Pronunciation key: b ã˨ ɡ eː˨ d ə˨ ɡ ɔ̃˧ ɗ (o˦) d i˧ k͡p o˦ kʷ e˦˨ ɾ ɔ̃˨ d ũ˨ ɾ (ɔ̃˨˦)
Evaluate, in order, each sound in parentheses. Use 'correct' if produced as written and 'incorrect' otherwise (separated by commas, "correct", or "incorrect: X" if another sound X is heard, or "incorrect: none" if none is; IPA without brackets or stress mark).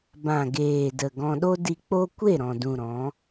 correct, correct